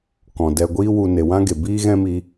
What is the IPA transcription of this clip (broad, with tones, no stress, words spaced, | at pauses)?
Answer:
kɔ̃˨dɛ˧ ɡʷiː˦wu˧ ne˨wã˦ɡe˨ biː˦ɣɛ̃˦mi˧